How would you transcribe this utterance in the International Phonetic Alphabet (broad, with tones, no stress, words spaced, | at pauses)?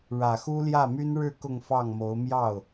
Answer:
ɻä˨˩xu˥ljä˥˩my˥n ɻɻ̩˥˧ kʊ˥˧ŋfɑ˥˩ŋmo˧˥ʊ̯ mjɑ˥˩ʊ̯